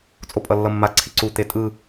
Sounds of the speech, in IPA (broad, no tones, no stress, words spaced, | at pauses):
t͡sʼopʼʌlːʌmːa ǀʰiǀu t̪etʼɯ